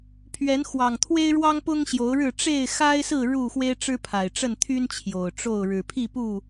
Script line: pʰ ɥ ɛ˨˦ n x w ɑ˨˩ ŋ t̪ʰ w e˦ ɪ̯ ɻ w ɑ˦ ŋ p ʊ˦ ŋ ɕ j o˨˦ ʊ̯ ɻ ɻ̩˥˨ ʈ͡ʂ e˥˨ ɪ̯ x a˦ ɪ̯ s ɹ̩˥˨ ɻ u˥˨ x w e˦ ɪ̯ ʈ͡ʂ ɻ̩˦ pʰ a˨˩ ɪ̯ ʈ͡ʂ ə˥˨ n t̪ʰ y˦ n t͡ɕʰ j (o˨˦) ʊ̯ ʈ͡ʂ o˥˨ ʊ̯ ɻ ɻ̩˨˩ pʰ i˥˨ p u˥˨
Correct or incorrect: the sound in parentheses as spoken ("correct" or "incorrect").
incorrect